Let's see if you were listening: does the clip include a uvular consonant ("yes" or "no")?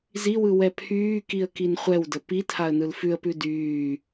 yes